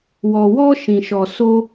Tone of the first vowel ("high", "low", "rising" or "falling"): low